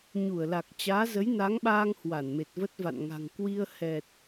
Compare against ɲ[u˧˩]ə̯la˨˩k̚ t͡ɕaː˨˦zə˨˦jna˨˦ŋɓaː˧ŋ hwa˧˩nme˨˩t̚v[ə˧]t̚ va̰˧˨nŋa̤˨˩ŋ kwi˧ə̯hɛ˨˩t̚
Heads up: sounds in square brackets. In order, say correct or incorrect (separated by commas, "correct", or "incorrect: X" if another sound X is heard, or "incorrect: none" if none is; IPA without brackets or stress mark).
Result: correct, incorrect: ə˦˥